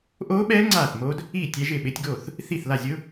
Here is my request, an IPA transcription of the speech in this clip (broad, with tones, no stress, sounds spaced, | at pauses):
ʔ o˦˥ ɓ ɛ˦˥ ŋ͡ǀ a˥˩ θ m o˦˥ d | i˥˩ tʲ ɛ˦˥ ʒ ɪ˥˩ ɓ ɪ˦˥ tʲ ɡ o˥˩ θ | θ i˥˩ θ l a˥˩ zʲ ʊ˦˥